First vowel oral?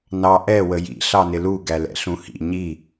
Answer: yes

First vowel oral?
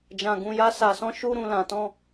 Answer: no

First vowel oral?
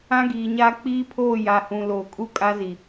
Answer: no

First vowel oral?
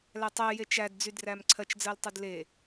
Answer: yes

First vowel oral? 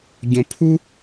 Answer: no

